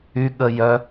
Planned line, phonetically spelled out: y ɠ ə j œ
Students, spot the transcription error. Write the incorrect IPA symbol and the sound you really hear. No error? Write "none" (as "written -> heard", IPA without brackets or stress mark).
none